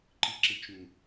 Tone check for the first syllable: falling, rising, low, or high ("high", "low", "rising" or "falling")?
low